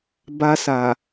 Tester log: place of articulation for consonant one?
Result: labial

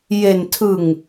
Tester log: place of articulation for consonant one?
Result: palatal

